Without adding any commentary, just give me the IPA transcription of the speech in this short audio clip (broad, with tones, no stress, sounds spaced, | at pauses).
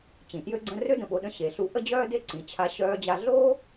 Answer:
t͡ɕ ĩ˩ t j ø˧ ɡ͡ǀ ə̃˧ r ø˥ d ə̃˩ ɓ o˧ ɗ ə̃˧ ɕ e˩ ɬ u˧ ʔ ə˥ d͡ʑ œː˥ d e˥ ǀ ĩ˩ t͡ɕʰ a˧ ɕ œː˧ d͡ʑ a˧ ɮ oː˥